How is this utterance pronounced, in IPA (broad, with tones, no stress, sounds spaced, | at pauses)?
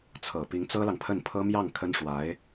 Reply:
t͡sʰ ɤ˨˩ p i˧˥ ŋ t͡s ɤ˥ l ɑ˨ ŋ pʰ ə˥˩ n pʰ ɤ˥ m j ɑ˥˩ ŋ kʰ ə˥ n ʂ w a˧˥ ɪ̯